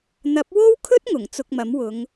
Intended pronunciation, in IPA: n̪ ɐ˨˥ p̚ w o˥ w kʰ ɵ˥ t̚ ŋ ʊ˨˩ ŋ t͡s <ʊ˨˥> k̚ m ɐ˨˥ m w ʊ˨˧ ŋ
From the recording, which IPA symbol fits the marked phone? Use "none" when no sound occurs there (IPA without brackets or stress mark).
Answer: ʊ˧